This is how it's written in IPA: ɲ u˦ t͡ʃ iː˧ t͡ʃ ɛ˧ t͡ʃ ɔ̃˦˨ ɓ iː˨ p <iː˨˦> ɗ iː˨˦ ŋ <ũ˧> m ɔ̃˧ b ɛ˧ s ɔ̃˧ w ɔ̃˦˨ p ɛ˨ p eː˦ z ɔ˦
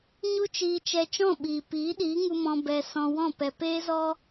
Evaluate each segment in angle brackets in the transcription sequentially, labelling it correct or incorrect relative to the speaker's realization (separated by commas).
correct, incorrect